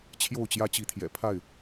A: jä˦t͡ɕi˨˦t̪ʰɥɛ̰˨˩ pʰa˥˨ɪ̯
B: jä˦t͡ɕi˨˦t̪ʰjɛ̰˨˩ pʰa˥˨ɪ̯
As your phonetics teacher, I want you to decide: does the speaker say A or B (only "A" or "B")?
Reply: B